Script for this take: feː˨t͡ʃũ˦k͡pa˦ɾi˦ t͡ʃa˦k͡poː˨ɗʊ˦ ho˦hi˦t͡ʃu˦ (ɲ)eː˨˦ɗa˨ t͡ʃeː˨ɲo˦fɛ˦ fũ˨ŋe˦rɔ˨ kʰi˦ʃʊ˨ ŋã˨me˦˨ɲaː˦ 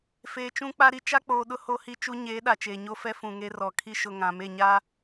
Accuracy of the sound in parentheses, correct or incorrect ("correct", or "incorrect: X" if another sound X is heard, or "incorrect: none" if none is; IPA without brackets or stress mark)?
correct